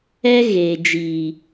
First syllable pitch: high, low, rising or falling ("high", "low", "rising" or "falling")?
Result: high